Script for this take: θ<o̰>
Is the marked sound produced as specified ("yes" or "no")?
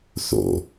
yes